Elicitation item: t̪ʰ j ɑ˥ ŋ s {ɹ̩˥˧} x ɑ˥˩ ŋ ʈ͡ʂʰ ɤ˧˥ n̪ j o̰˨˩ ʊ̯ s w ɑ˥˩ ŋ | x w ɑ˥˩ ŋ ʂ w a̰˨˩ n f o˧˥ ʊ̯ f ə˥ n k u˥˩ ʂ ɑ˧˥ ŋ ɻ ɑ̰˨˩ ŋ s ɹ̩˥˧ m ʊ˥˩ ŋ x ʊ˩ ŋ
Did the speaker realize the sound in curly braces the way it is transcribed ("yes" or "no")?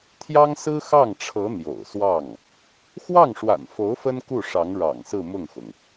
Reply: no